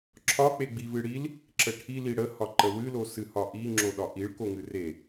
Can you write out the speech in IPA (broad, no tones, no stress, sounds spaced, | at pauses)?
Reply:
ǁʰ ɒ k͡p e ɡ͡b i v ɨ ɽ i l | ǁ ə ʈʰ i l i ɽ ə h ɒ ǃ ə w ɨ l o s ɨ h ɒ ʔ i ŋ͡ǁ o ɗ ɒ ʔ i ɭ k o ŋ ɨ r e